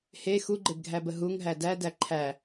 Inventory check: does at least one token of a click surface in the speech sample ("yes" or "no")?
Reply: yes